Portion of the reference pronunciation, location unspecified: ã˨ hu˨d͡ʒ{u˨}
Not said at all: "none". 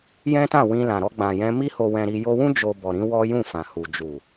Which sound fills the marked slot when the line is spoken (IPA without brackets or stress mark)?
u˨